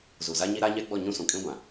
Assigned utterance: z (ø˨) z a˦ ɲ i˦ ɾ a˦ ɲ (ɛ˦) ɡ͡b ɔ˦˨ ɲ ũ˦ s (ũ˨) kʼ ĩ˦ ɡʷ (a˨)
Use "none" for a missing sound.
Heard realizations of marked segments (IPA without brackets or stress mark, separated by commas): u˨, ɛ˦, ũ˨, ã˨